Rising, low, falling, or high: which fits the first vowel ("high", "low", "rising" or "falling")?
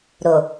low